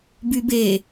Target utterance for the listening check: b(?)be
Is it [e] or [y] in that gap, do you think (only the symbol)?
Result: y